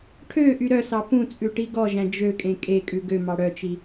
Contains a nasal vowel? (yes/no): yes